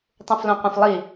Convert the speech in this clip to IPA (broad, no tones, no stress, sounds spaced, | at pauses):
tˤ ũ f l õ qʷ ɐ̃ f lˠ i